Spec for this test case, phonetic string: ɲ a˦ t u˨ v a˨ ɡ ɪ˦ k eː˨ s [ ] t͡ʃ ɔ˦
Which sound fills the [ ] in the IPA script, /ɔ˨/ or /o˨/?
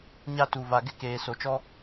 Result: o˨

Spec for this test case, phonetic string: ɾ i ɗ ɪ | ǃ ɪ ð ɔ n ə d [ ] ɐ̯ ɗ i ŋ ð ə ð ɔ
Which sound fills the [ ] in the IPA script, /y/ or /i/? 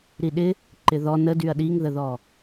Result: y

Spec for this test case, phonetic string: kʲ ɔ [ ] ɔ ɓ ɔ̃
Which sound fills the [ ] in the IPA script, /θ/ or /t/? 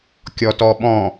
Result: t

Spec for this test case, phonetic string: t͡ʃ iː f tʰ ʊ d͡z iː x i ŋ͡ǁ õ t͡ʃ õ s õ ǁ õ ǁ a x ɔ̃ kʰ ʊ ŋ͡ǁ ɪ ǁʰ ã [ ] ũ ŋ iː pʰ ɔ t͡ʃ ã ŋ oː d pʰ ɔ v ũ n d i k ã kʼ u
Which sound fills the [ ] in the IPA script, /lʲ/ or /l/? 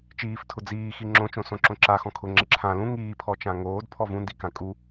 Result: l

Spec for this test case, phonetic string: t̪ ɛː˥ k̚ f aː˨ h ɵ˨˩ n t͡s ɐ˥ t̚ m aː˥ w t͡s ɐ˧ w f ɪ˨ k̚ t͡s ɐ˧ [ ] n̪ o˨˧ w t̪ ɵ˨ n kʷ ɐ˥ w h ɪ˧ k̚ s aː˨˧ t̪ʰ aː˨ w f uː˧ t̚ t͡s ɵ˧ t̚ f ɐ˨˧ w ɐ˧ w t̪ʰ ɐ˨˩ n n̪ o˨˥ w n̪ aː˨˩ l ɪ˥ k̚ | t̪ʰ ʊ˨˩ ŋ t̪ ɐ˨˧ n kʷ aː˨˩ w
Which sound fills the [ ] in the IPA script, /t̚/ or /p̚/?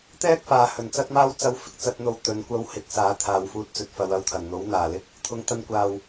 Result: t̚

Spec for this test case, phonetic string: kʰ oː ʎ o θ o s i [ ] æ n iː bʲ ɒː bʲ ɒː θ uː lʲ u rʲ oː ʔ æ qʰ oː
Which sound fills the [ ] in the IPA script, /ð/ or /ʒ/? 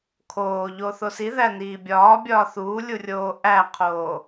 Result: ð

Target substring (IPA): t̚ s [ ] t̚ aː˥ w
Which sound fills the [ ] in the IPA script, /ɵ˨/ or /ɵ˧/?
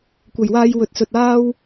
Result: ɵ˨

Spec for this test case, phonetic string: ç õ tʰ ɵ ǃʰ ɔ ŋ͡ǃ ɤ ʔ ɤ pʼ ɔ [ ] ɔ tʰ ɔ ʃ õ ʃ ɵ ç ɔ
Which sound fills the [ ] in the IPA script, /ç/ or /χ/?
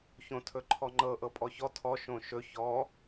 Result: ç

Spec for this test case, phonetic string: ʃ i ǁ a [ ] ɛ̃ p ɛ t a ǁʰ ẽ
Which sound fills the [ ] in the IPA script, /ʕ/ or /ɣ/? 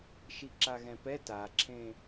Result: ɣ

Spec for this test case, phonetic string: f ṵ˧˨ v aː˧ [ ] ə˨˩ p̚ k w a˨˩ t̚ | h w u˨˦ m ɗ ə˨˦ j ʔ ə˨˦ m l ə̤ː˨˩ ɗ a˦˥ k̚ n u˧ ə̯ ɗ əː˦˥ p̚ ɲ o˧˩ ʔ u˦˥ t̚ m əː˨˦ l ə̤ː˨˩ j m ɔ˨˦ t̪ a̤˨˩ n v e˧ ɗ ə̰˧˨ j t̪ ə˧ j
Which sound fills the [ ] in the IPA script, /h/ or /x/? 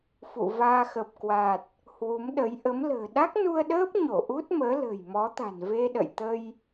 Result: x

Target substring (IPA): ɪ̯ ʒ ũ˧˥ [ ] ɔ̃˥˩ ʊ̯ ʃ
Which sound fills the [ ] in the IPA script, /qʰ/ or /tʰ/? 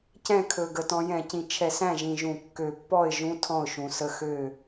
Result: tʰ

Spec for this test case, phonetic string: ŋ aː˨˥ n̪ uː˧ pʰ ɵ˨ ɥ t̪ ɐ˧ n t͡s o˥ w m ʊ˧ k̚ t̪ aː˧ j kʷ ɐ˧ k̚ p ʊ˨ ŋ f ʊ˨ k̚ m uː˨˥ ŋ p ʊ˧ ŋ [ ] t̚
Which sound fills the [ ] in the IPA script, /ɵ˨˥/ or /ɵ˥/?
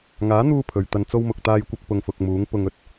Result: ɵ˥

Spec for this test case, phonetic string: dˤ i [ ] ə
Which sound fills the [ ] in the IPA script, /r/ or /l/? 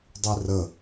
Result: r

